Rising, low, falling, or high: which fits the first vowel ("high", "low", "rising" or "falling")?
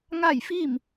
falling